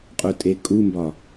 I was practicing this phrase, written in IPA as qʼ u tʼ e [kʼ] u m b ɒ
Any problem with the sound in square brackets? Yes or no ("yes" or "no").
no